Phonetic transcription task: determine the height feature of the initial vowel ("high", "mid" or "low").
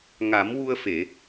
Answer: low